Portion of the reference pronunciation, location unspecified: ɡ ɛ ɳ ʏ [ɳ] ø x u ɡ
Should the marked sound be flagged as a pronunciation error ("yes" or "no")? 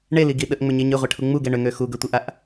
yes